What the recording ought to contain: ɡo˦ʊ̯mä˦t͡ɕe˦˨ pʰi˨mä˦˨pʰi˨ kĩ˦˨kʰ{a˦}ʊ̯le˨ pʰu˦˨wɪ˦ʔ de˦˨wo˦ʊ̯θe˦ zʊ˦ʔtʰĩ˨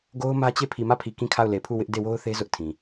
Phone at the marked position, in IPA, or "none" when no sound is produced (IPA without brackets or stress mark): a˦˨